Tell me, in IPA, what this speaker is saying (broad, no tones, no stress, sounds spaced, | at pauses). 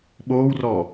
ɓ oː w r ɔː